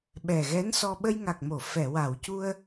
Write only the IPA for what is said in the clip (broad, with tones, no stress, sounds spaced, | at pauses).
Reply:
ɓ ɛ˨˩ ɣ ɛ˧˥ n s ɔ˧ ɓ ə˧ j ŋ a˨˩ k̚ m o˨˩˨ f ɛ˨˩˨ w a˨˩˨ w c u˧ ə̯